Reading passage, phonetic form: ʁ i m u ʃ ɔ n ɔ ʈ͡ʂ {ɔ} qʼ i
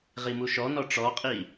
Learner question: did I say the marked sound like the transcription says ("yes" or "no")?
yes